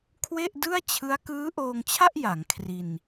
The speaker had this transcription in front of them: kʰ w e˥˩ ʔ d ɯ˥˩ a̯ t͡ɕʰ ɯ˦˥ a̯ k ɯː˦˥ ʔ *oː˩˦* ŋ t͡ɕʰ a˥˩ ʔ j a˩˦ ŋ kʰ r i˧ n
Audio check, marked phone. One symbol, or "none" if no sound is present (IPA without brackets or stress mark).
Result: oː˧